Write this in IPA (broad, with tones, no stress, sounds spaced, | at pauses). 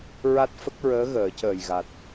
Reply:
ɹ a˦˥ t̚ f ə˦˥ k̚ ɹ əː˧˥ ɣ əː˨˩˦ c əː˨˩ j ɣ a˨˩ t̚